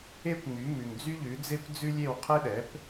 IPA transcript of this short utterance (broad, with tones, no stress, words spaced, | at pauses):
e˥kʷŋ͡my˩˥mʉ˨ŋ d͡zy˥ʎʉ˩˥ d͡ze˥kʷd͡zʉ˥lʲe˥˨w qʰe˥ɗɛ˩˥p